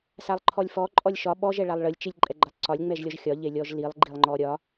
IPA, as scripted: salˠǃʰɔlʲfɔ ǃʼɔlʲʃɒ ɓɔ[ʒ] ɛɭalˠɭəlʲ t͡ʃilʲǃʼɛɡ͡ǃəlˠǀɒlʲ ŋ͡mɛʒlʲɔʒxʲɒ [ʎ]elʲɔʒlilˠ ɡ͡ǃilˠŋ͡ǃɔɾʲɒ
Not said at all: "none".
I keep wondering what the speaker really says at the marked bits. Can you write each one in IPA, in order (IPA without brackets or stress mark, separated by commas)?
ʒ, ʎ